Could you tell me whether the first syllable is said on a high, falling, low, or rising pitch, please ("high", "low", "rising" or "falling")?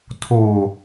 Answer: low